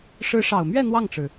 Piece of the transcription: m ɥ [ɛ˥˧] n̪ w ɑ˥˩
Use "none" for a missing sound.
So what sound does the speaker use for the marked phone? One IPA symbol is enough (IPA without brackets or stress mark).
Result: ɛ˥˧